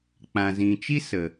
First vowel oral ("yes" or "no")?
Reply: no